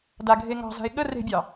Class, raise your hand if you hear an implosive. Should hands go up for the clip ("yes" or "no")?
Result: yes